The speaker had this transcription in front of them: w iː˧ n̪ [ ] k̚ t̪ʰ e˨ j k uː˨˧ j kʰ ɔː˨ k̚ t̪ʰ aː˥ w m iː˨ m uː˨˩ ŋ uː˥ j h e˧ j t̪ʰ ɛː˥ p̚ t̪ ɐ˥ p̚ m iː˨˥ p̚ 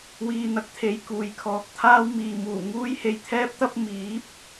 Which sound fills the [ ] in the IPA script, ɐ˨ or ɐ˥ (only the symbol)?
ɐ˨